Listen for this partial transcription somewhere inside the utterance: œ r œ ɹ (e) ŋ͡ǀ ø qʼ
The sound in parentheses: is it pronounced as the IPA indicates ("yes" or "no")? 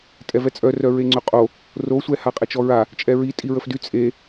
yes